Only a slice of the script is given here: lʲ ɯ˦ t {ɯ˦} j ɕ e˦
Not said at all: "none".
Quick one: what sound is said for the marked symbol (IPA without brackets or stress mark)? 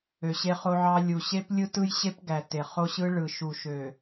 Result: ɯ˦